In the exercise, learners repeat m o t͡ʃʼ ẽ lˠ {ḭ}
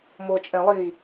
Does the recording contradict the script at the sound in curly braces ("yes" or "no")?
yes